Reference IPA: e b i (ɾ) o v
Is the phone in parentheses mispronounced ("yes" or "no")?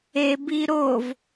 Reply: no